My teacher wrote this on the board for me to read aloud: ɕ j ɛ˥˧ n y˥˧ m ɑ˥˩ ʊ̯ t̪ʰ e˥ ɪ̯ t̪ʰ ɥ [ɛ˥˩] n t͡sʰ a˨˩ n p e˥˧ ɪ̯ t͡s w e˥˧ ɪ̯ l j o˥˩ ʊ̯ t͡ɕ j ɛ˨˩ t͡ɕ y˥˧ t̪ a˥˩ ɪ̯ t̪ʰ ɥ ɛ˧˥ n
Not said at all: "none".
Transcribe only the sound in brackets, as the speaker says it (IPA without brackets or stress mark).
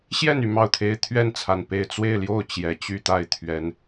ɛ˥˩